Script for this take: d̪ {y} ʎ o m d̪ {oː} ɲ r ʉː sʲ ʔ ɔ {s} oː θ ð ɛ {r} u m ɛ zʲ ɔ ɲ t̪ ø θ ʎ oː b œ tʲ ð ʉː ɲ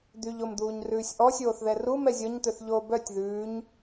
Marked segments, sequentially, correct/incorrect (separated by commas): correct, incorrect, incorrect, correct